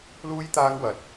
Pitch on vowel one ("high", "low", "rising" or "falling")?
high